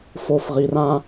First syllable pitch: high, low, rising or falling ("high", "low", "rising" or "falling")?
low